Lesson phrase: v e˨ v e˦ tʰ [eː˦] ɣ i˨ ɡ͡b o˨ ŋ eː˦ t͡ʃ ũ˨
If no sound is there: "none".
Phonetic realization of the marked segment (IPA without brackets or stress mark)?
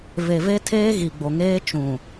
eː˦